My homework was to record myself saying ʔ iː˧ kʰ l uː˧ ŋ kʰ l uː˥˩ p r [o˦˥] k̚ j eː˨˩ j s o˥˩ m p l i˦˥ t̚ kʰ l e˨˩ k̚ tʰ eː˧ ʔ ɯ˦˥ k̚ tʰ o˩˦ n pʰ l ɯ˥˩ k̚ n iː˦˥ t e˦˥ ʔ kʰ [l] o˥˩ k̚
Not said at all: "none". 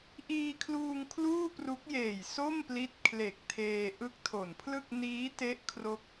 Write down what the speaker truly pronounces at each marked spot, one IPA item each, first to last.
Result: u˦˥, r

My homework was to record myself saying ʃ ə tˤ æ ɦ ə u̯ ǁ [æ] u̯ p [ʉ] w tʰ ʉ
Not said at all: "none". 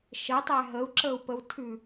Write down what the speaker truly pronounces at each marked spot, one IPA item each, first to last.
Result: ə, ə

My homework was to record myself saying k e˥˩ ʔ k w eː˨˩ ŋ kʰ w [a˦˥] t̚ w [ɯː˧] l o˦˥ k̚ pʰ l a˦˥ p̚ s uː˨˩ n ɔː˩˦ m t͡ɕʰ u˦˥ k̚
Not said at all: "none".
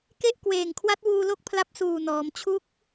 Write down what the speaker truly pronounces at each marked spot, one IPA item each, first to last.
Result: a˦˥, uː˧

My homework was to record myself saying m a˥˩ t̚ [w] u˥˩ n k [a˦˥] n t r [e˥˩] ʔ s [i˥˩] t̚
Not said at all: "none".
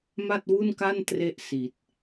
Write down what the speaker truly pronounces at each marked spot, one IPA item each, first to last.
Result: w, a˥˩, e˥˩, i˨˩

